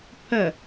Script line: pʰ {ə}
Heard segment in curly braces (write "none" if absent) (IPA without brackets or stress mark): ə